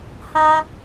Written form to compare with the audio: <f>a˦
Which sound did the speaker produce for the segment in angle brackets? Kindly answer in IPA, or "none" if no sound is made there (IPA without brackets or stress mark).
h